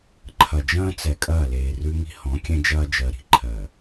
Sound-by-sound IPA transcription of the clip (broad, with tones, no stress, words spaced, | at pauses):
ǃʰɐ˨d͡ʒɐ̃ː˦t͡sɛ˨ kʼɐː˦˨leː˨rʉ˦ŋi̤˦ hɔ̃˨˦kʲɛ̃˦ d͡ʒɐː˦d͡ʒɜ˨ɾi̤˨ ǃʰɜ˨